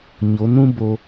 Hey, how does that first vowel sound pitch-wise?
rising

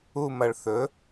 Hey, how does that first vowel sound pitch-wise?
falling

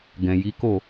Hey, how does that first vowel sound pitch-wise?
low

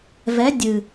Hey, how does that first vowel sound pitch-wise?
rising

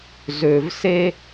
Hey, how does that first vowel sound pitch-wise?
low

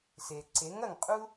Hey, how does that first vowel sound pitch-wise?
low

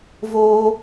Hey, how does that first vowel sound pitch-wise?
high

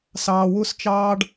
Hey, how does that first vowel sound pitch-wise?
low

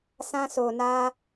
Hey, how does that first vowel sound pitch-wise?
high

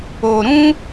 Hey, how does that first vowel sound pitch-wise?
low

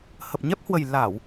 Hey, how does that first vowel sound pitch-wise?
low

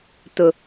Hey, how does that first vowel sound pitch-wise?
low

